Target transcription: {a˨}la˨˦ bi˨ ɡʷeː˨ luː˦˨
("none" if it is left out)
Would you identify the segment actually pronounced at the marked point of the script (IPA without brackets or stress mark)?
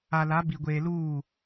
a˨